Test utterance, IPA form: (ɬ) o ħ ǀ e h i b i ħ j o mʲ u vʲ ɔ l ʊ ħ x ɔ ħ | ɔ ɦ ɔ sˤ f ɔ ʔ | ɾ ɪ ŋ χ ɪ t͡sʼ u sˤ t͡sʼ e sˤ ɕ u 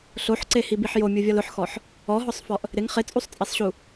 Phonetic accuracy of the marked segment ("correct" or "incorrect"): correct